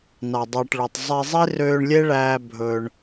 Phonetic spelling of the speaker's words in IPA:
n ɑ˨ dˤ ɑ˨ ʈ ɭ ɵ˨ tˤ zˤ i˧ zˤ i˦ r øː˧ ɳ lʲ e˦ ɭ æː˧ bʱ ɵ˧ ɳ

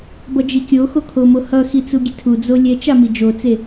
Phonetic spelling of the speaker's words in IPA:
b ʌ d͡ʒ i kʲ o x o kʰ o m o h ʌ x i t͡s u ɡʲ e tʰ u d͡z o lʲ ɛ t͡ʃ a m i d͡ʒ o t͡s e

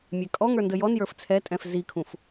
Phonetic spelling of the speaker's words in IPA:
mʲ ɛ kʼ ɔ ŋ ə˞ n d ə j ɔ n j ə˞ f t͡sʰ ɛ tʼ ɛ̃ f z i kʰ ũ f

